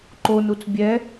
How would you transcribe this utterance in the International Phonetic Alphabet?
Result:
ǃ o n u t͡s bʲ ɛ

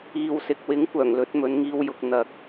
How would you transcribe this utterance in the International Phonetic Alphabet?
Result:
iː˨ w s ɪ˨ k̚ w ɪ˨˥ ŋ kʷ œː˨˩ ŋ l ɵ˨˥ t̚ m ɵ˨˧ n ŋ iː˧ w j ʊ˨ k̚ n̪ ɐ˨ k̚

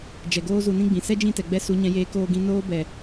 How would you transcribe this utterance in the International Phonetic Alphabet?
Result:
d͡ʒ ɛ˨ ɡ oː˦ z u˧ n ĩ˦ ɡ͡b ĩ˨ s ɛ˦ d͡ʒ ĩ˦˨ t ɛ˨ ɡ͡b ɛ˧ s u˨˦ ɲ ɛ̃˨˦ j eː˧ k oː˧ ɡ ĩ˧ n oː˦ b ɛ˨

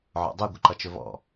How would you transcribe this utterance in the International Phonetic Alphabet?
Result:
ʕ ɔ̰ dˤ ʉ ɡʷ ə ǃ ʌ t͡ʃ ɵ v ɔ̰

